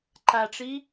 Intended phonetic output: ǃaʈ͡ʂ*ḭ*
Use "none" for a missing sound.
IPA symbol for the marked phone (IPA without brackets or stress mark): i